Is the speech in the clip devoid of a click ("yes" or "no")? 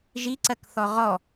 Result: no